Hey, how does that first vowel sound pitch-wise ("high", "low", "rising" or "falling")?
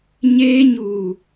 high